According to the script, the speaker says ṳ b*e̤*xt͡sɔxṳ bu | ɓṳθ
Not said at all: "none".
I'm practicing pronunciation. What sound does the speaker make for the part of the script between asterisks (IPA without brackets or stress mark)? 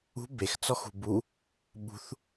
e